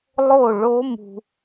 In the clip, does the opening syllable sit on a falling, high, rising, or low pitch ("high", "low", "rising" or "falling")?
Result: falling